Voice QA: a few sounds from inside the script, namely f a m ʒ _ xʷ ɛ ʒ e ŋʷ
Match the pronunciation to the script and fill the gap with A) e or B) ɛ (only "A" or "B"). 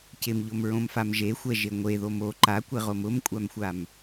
A